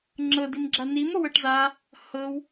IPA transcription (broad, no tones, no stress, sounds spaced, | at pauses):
ŋ͡ǁ ɤ d i m ɡ͡ǁ a n i m o w ɤ ʈ z a | h ɤ w